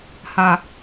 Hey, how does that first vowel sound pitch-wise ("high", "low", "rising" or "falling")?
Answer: low